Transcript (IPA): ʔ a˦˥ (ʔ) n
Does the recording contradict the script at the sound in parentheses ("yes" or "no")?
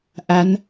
yes